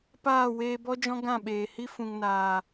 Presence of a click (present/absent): absent